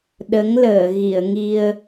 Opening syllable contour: rising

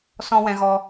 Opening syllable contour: high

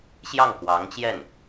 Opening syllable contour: falling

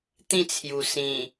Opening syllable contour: falling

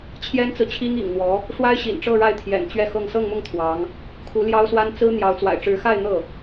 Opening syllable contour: high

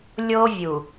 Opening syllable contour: high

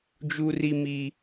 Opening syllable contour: high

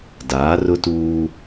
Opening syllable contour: rising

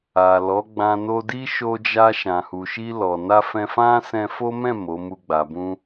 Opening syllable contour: low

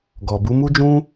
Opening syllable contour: low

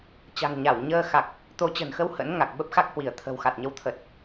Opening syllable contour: low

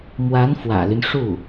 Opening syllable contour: rising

